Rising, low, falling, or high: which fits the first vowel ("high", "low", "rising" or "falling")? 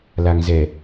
low